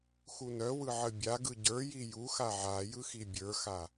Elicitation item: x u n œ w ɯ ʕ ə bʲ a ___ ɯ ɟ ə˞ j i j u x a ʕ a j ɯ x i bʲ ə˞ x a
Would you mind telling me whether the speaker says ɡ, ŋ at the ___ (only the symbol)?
ɡ